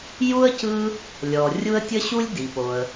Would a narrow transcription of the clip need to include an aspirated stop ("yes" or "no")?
no